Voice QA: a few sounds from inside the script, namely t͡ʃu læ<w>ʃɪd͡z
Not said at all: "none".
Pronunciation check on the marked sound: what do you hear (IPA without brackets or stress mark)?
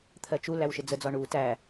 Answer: w